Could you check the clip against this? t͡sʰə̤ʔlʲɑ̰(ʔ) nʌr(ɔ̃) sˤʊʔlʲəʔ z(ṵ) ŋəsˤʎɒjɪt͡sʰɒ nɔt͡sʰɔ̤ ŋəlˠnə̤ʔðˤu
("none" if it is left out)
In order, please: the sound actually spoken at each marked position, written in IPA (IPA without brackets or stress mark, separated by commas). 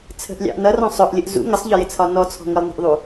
ʔ, ɔ̃, ṵ